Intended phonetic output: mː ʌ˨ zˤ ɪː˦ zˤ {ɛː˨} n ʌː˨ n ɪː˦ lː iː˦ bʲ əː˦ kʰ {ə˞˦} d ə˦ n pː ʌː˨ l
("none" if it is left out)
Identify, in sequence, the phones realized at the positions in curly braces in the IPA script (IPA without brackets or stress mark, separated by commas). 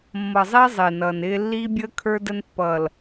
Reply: ɪː˨, ə˞˦